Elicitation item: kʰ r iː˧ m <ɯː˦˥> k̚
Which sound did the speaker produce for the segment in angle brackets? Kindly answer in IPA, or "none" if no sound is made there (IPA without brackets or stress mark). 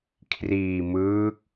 ɯː˦˥